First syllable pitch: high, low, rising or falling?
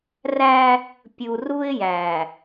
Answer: high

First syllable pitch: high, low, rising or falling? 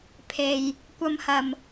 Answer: low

